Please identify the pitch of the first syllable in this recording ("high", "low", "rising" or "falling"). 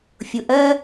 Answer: rising